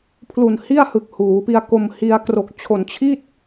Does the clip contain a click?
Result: no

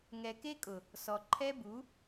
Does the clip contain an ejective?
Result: yes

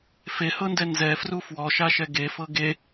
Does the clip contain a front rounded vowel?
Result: no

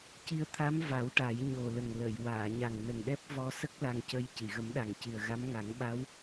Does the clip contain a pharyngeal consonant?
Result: no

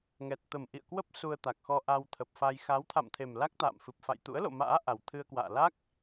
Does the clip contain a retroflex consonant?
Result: no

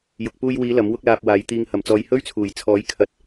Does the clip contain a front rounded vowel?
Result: no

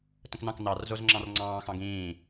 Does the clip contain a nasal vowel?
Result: yes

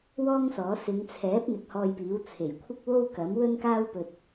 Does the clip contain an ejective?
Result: no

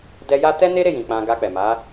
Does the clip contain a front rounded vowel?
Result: no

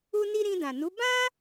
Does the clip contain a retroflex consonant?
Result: no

